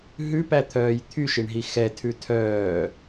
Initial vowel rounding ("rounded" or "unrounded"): rounded